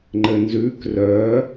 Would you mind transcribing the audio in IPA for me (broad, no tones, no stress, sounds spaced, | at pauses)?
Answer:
ŋ͡ǃ ɘ n z ʉː k r œː